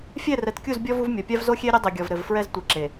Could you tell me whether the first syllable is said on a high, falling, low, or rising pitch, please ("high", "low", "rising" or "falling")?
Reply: falling